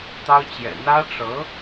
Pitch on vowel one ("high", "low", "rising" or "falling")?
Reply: high